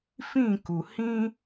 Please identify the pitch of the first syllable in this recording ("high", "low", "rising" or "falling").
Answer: falling